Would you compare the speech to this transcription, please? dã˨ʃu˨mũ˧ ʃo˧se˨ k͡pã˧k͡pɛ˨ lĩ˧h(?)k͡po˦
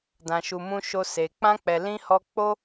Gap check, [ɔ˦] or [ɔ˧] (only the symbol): ɔ˧